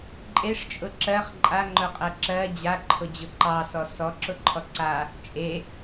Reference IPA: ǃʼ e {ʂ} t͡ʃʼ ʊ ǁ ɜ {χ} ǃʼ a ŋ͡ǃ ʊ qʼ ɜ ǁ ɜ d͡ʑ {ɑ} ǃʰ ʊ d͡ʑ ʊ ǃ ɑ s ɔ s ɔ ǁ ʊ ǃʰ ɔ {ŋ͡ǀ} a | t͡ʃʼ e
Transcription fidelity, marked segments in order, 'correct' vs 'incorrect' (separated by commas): correct, correct, incorrect, incorrect